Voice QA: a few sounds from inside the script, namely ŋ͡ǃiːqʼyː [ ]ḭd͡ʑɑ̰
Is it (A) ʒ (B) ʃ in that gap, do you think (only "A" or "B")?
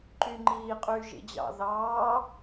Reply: A